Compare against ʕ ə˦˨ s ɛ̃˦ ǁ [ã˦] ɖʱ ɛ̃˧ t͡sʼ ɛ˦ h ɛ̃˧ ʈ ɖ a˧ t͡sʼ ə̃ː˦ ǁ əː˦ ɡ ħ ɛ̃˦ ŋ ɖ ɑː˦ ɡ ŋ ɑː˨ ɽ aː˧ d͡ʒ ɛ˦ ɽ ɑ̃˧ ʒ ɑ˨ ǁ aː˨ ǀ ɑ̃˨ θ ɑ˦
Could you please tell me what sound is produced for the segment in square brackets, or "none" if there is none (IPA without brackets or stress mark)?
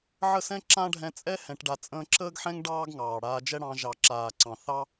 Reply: ã˦